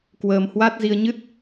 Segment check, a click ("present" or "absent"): absent